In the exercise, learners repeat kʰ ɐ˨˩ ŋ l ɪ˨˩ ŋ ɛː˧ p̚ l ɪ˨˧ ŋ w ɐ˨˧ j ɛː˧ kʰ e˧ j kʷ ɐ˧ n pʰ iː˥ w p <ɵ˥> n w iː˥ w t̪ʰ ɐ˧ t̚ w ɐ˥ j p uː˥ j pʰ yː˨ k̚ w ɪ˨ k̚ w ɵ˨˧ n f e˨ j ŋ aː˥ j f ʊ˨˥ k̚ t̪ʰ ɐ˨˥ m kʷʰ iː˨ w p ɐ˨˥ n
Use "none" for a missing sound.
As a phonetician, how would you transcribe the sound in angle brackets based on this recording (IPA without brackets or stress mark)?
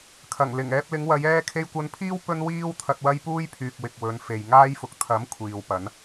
ɵ˥